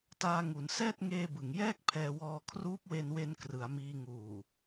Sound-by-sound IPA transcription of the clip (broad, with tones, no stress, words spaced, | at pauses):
taː˧ŋu˩˦nsɛː˥˩t̚ŋeː˧ bɯ˩˦ŋjɛː˥˩k̚ pʰɛː˧wɔː˧ kʰruː˦˥p̚we˧nwe˧n krɯ˩˦a̯miː˧ ŋuː˨˩